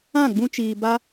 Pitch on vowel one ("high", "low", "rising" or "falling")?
falling